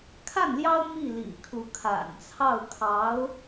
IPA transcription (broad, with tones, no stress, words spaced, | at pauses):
kʰa˥˩nljɑ˥ʊ̯ mi˥˩lḭ˨˩kʰu˧˥ kʰa̰˨˩nt͡sʰɑ˥˩ʊ̯kʰɑ˧˥ʊ̯